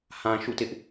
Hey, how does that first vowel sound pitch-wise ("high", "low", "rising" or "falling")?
low